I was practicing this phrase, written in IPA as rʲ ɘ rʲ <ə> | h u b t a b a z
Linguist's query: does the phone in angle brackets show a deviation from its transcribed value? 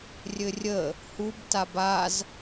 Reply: no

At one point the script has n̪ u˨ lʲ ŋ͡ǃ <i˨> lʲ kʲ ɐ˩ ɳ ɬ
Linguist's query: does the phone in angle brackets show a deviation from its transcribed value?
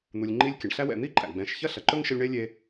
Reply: yes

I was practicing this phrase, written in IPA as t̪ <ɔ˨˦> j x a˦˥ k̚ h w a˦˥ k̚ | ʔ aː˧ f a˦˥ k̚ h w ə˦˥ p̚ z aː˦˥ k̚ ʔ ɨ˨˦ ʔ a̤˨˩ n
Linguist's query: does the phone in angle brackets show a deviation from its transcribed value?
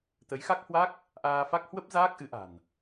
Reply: yes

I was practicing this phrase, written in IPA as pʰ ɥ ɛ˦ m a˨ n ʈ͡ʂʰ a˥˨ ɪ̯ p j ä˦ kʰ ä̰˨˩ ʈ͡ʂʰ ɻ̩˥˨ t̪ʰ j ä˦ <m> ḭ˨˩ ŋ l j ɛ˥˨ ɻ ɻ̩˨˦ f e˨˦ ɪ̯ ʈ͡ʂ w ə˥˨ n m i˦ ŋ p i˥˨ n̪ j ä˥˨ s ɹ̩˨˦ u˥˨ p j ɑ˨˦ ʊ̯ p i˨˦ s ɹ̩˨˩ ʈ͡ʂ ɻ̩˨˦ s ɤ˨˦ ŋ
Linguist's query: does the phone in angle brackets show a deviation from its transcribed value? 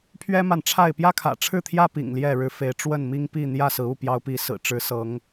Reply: yes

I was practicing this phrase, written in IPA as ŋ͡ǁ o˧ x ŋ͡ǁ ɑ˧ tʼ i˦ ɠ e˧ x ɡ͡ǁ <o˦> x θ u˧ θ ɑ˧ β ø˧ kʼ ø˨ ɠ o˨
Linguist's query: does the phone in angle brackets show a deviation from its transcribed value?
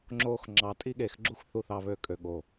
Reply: yes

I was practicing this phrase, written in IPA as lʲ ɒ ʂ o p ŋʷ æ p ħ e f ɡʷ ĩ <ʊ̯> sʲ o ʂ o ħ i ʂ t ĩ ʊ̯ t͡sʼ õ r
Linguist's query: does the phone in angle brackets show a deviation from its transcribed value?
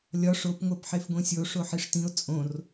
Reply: yes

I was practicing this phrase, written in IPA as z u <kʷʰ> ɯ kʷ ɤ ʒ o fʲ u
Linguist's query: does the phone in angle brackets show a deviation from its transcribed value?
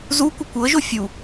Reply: yes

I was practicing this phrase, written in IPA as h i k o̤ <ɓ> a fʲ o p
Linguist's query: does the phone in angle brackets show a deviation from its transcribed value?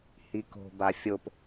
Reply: yes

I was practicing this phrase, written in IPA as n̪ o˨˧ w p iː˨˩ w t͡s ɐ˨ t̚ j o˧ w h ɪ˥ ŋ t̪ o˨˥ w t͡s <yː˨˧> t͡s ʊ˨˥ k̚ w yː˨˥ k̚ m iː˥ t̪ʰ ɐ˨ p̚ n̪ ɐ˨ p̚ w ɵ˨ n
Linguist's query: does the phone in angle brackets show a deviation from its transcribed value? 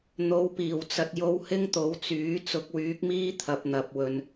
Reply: yes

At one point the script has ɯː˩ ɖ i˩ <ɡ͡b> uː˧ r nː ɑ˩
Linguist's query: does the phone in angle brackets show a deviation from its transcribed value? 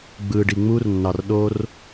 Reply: yes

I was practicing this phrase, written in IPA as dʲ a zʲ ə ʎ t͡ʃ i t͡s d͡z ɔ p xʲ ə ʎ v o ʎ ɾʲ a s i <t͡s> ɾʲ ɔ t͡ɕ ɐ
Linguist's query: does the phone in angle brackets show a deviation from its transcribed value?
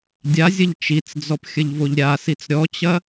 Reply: no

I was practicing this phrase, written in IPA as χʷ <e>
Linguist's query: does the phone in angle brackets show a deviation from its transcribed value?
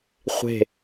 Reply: yes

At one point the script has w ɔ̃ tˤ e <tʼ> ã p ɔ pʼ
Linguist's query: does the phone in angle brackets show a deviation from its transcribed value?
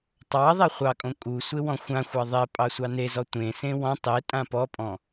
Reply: no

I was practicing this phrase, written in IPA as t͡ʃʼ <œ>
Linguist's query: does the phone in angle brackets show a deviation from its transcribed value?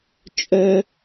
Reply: no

